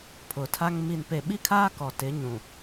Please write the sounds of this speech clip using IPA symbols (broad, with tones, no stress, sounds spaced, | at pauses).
pʰ ʊ˨ tʰ a˦ ŋ m i˨ n p e˨ ɓ i˦ kʰ aː˦ k ɔ˨ t ɪ˨˦ ɲ ũ˨